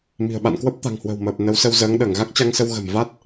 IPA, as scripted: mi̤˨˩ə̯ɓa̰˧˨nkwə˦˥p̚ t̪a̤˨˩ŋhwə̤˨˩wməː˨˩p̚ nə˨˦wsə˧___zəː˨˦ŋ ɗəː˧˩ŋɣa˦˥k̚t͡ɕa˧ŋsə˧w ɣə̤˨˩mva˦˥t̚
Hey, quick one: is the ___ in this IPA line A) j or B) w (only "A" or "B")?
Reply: B